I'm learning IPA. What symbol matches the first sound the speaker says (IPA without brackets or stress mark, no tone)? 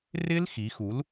r